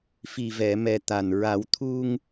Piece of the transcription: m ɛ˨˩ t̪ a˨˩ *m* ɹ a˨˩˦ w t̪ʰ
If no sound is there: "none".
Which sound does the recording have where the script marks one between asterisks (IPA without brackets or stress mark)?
n